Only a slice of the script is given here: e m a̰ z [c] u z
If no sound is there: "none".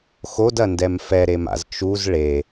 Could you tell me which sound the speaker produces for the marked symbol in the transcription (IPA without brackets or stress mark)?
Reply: t͡ʃ